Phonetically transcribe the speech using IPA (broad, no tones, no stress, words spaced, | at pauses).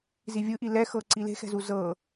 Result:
zivʲɯʔi lɛxɤ ǀile̤xɛ̤zu zɤ